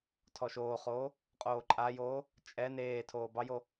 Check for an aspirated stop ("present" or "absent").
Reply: present